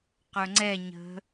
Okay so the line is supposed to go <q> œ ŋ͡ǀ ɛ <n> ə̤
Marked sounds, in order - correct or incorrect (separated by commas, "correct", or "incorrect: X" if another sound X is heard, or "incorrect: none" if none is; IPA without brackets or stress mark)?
correct, incorrect: ɲ